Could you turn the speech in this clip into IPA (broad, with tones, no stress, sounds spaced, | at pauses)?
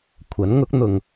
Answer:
kʷʰ ɐ˨˥ n ŋ ʊ˨˥ k̚ n̪ ʊ˨ ŋ